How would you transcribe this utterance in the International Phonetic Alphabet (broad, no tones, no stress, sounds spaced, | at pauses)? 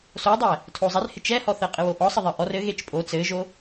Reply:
s o dˤ ɛ | tʰ o zˤ ɛ r h ɪ t͡ʃ ɛ h ɔ θ ɘ qʼ ɪ w o ʔ ɔ sˤ ɘ ðˤ ɘ ʔ ɔ r ɘ ɣ e t͡ʃ pʼ o t͡s ɘ ʒ o